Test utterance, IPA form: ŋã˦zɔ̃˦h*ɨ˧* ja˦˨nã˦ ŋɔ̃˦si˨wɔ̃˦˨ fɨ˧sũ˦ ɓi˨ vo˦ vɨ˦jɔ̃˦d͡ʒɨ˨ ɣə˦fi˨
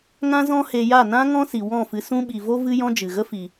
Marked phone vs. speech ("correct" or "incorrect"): incorrect